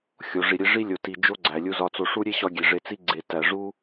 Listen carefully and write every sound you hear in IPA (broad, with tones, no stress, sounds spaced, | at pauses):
xʲ o˨ ʐ i˨ ɾʲ e˦ ʐ i˦ lʲ o˨ t i˨ d͡ʒ o˦ ɡ͡ǀ æ˨ lʲ u˧ z ɒ˧ t͡s o˧ ʂ u˦ ɾʲ e˦ ɕ ɒ˧ ɡʲ e˨ ʐ e˧ t͡s i˦ ɡ͡ǀ e˨ t æ˨ ʐ u˦